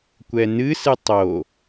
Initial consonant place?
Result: velar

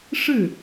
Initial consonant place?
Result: retroflex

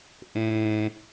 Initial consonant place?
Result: glottal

